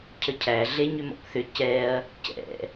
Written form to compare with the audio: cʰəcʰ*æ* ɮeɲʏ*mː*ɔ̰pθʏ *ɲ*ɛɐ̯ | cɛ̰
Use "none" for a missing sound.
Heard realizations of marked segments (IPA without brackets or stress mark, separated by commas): æ, m, c